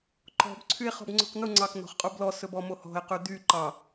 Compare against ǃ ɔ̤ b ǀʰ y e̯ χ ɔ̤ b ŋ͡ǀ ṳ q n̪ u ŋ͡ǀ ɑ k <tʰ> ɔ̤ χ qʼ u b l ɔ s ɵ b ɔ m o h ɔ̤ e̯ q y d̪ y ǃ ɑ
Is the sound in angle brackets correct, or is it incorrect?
incorrect